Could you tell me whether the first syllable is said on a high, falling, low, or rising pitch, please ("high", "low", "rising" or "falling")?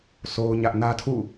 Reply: high